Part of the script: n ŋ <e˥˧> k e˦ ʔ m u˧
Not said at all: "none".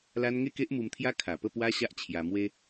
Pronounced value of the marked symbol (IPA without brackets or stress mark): e˥˧